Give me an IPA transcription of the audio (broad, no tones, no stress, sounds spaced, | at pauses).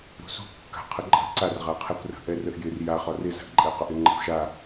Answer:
ɾ ṳ s ṳ kː a̤ qʰ ə ǃʼ ə̤ ǀ a r ʁ a qʰ ɛ p r ə̤ ʔ ɛ r ə ʔ j ɪ r j a χ ɒ r ɪ z a̤ ʔ ǃʼ ɛ q ɒ ʔ ɪ ŋ͡ǃ ə̤ p ʃ a